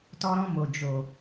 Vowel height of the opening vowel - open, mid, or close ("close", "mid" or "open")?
mid